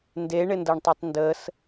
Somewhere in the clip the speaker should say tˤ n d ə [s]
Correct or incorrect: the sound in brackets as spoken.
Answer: correct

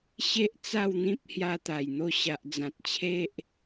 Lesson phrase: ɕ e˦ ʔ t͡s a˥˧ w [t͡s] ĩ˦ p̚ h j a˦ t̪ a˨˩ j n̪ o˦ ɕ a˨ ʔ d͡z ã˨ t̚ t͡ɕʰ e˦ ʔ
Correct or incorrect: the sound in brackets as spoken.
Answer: incorrect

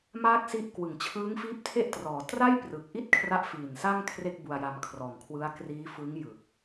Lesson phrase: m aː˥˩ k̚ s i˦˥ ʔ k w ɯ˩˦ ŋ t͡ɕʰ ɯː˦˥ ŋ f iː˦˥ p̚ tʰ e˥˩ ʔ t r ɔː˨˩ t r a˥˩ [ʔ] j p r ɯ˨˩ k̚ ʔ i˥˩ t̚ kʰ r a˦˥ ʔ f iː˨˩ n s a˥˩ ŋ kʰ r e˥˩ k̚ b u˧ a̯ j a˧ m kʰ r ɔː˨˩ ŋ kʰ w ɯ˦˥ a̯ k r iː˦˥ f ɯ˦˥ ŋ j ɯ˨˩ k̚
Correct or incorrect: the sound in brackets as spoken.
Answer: incorrect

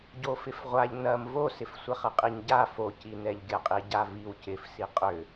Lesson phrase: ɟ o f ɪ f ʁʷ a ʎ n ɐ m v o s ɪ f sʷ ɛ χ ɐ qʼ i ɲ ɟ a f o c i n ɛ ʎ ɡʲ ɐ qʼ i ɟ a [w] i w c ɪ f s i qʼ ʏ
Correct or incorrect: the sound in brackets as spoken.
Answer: incorrect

